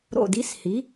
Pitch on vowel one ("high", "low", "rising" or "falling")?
falling